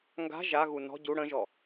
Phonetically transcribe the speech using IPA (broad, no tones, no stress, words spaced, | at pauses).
ŋɡa̤ ʒaɣu nɔ̤ ɟu ɽə̃ʒɔ